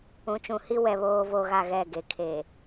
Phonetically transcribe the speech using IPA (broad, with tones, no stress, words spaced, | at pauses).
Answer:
ũ˨t͡ʃũ˨hi˦wɛ˨ βoː˦vo˦ ɣa˦ɣɛ˦˨ɡe˨ kʰe˨